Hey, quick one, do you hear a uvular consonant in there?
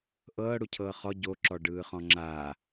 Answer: yes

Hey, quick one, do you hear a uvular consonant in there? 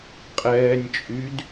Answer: yes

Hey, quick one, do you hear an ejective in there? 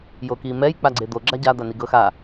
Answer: no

